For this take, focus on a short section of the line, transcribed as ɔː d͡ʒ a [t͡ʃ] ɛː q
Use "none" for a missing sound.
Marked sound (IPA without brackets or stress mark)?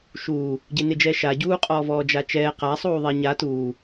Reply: t͡ʃ